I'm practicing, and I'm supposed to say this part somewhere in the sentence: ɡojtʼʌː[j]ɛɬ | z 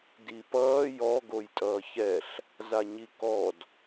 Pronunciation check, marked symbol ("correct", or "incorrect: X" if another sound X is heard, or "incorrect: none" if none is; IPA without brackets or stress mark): incorrect: ç